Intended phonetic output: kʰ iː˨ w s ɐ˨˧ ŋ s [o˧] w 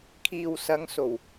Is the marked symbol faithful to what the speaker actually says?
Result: no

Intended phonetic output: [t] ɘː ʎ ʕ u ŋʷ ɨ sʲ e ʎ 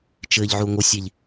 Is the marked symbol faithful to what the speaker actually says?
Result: no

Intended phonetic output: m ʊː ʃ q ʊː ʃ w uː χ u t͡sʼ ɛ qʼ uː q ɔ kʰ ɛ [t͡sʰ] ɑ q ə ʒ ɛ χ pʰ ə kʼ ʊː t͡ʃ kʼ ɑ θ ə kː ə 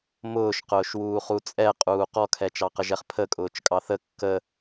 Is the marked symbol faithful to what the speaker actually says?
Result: no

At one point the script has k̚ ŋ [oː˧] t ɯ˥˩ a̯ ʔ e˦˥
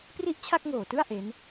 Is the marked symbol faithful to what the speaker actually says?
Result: no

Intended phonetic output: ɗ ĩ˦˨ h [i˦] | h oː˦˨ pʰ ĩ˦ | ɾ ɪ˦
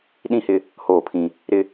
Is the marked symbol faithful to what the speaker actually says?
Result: no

